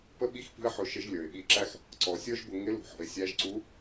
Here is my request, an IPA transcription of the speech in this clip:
pə˥ɓi˥xpi̤˥ə̯ħʊ˧ ʃɪ˧˥ʒlʲə˞˩ɪ̯ɓi˧ǁæ˥x | ǀɔ˩˧sʲə˞˥ʒbʊ˧ ŋɪ˧˥ lṳ˩˧ħɔ̤˩˧ɪ̯ sʲæ˧˥ʒǀu˧˥

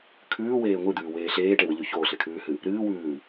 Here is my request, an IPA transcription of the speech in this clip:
kʰʉːweː ŋʷɨd̪ʉːweː ɬeːʈewɨʎʉ çoːɬekʰʉːhɨ | ɾɨːwʉː

